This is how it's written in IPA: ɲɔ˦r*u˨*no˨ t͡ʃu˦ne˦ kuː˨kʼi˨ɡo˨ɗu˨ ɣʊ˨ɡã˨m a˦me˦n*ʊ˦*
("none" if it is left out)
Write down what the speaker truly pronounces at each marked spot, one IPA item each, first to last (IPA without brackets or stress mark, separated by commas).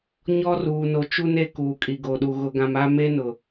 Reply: uː˨, ʊ˨